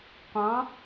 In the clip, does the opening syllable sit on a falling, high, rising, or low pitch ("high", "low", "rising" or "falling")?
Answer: rising